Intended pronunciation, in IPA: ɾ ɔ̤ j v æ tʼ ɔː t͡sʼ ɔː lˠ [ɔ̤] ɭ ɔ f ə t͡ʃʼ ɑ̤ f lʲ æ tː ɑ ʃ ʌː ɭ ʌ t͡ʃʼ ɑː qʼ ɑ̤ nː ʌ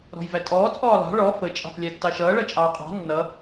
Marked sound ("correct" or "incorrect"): incorrect